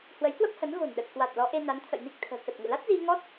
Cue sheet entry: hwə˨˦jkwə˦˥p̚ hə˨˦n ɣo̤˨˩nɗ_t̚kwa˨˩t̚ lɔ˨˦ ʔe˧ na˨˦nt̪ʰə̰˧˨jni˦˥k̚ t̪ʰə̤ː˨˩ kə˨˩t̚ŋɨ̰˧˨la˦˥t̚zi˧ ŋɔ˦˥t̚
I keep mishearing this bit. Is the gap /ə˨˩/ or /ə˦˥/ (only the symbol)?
ə˨˩